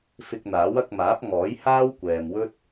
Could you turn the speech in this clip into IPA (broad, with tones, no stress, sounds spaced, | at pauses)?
f ɪ˧ k̚ n̪ aː˨˥ w ɐ˧ k̚ m aː˨˥ p̚ ŋ ɔː˨˥ j h aː˥ w kʷ ɛː˨ m w ɵ˥ t̚